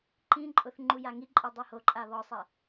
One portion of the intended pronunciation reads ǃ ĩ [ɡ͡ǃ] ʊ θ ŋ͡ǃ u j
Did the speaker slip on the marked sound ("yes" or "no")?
yes